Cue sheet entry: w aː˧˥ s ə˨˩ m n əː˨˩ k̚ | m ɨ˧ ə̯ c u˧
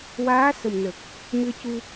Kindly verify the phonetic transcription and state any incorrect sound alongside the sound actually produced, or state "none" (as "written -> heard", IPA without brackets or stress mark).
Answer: none